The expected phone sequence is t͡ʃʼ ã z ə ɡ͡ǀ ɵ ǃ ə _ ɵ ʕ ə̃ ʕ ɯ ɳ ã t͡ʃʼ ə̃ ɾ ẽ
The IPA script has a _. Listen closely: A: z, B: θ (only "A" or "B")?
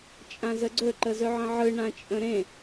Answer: A